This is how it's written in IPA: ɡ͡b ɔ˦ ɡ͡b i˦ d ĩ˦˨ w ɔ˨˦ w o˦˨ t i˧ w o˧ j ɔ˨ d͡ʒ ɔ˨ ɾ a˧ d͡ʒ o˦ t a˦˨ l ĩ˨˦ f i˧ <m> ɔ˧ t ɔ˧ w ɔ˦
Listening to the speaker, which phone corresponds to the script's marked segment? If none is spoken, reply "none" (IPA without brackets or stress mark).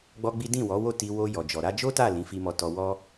m